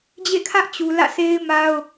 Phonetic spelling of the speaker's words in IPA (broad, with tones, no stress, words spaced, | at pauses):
d͡ʑḛ˦˨kʰä˦ʔt͡ɕu˨ lä̰˦˨sʰe˦ɪ̯ma˦ʊ̯